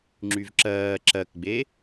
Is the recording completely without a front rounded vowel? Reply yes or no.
no